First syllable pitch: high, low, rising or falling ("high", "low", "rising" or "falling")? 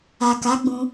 low